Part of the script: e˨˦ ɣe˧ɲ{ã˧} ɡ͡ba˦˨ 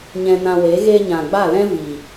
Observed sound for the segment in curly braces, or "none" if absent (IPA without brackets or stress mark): ã˨